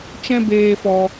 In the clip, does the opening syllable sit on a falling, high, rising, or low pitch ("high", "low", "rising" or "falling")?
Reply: high